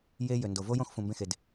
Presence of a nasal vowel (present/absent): present